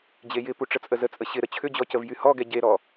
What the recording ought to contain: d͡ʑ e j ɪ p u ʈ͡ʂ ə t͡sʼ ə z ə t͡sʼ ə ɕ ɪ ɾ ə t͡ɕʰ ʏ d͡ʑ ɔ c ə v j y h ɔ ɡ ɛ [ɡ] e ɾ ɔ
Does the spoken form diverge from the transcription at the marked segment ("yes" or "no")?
yes